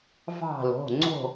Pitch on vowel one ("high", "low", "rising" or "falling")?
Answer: falling